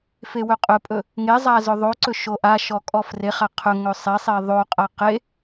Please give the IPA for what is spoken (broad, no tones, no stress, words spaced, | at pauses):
fewɵqʼɵpʼɵ | ŋezˤa zɵðˤoǀɵ ʃoʔaʃɔ kʼɔfreχa qʰɵŋɵ sˤesˤe ðˤoqʼa qe